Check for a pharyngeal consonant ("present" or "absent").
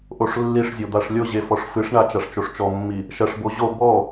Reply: absent